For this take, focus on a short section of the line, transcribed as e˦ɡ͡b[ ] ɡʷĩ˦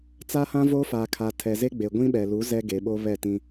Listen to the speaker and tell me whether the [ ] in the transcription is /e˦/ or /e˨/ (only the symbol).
e˨